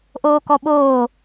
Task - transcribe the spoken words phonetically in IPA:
ʔ oː k ɔ ɓ oː

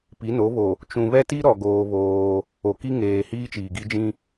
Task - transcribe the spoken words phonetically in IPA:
p i˨˦ n o˨˦ β o˨ | t͡ʃ ũ˨ β ɛ˦ t i˦ ɾ ɔ˨ ɡ oː˦ β oː˦ | o˨ k i˦ ŋ eː˨ h iː˦ t͡ʃ iː˨ ɡ i˦ d͡ʒ ĩ˦

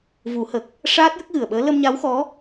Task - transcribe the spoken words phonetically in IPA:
v u˨˩˦ h ə˨˩ k̚ | ʂ aː˦˥ t̚ j ə˦˥ k̚ ɣ ɨ˨˩ ə̯ ɓ əː˧˥ l ə˧ m ɲ a˧˥ w x ɔ˧˥

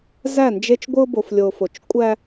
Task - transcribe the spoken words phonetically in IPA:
z æ˦˨ n d͡ʒ e˦ t͡ʃ ɡʷ ɯ˦ ʊ̯ b o˨ f lʲ o˨ f o˨ t͡ʃ kʷʼ æ˦

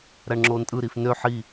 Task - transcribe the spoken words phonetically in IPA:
ɾ æ ɳ ŋ͡ǁ oː n tʼ ɯ ɾ i f n ø ħ i

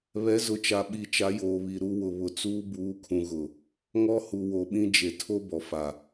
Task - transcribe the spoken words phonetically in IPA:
β ɛ˨˦ z ʊ˨ t͡ʃ a˨ ɓ i˨ t͡ʃ a˨˦ j oː˨ β i˨ ɾ u˦ w ʊ˨ β ʊ˨ t͡s uː˦ b uː˨˦ kʰ ũ˨ ɣ ʊ˨ | ŋ ɔ˦ h u˨ w o˨ ɓ ĩ˦ d͡ʒ e˨ tʰ o˦ b ɔ˨ f a˨

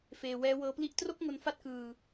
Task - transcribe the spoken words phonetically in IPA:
f eː˧ w ɛː˦˥ w ɤː˦˥ p l i˥˩ ʔ t r o˥˩ k̚ ŋ o˧ n f a˦˥ t̚ k ɯː˧

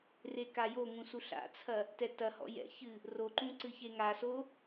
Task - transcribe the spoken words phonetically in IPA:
r e k a j o ŋ ũ s u ɬ a̰ t͡sʰ ɐ | t ɛ t ɐ h ɔ̰ j ɛ̰ ç ɨ | r o ǃ ũ ǀ ɨ ç e ŋ a s o

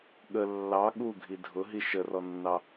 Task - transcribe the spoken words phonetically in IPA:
ɠ ə lː ɑ ɠ u ɡʱ i dʱ ʊ ɦ i ʃ ə r ɔ nː ɑ

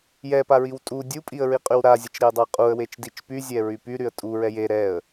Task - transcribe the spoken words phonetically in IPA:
j ɛ p a ɹ i w tʼ u dʲ u pʼ i ə̯ ɹ i qʼ y w ɾ a zʲ ə t͡ʃ ɾ e ə̯ dˤ a qʼ u ə̯ w e t͡ʃ d i t͡ʃ p y zʲ ɛ ɹ y p y ɾ y ə̯ tʼ u ɹ ɛ j e ɾ ɛ ə̯

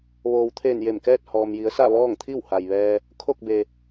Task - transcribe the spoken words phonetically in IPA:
ʋ oː˩ w t̪ʰ eː˧˩ n j e˧˩ m k ɛː˥˨ t̚ h ɔː˩ m j i˩˧ ə̯ s a˥˨ ʋ ɔː˥˨ ŋ t̪ʰ i˥˨ w h a˩ j ʋ ɛː˧ | kʰ o˥˨ k̚ b e˩

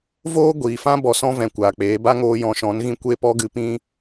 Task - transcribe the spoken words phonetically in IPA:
v oː˦ ɡʷ iː˨ f ã˦ b ɔ˧ s ɔ̃˦ v ɛ̃˨ kʷ aː˨ k͡p eː˨˦ b a˦ ŋ oː˧ j ɔ̃˧ ʃ ɔ̃˨˦ n ɣ ĩ˦ kʷ e˦ p ɔ˦ ɡ ɨ˧ p ĩ˦

